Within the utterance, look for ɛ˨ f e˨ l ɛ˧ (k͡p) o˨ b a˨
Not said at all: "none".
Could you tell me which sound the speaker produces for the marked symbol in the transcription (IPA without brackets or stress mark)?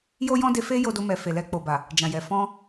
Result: k͡p